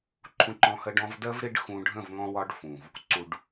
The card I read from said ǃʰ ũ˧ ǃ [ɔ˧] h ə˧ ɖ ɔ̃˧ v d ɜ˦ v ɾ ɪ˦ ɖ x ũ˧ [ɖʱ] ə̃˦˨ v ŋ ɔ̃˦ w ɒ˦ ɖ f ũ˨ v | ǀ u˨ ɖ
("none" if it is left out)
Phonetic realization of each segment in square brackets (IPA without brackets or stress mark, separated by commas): ɔ̃˧, ɖʱ